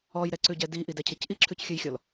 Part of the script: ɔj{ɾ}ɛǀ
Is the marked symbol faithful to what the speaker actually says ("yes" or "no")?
yes